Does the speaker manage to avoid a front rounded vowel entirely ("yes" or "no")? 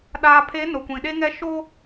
yes